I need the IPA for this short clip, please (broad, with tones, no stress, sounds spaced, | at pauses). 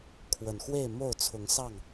kʰ w ə˨˩ n x w e˥˨ ɪ̯ m o˥˨ ʊ̯ t͡sʰ ʊ˨˦ ŋ s ɑ˥˨ ŋ